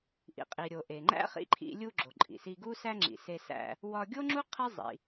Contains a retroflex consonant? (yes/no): no